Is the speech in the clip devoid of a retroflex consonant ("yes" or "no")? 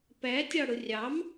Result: no